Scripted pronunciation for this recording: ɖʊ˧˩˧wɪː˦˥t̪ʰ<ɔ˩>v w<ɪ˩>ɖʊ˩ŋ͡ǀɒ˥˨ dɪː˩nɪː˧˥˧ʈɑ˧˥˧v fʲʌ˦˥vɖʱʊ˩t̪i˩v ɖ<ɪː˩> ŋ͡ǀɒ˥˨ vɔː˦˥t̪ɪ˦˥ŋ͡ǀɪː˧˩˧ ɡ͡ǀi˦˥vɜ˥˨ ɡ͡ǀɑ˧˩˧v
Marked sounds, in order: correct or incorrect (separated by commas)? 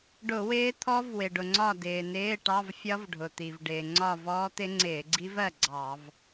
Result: incorrect, correct, correct